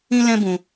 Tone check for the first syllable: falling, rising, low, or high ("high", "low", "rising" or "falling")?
high